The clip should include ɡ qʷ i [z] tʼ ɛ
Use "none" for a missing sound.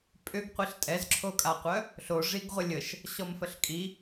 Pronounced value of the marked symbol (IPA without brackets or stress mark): ɬ